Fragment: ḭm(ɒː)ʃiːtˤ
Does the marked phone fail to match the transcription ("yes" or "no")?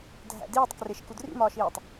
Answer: no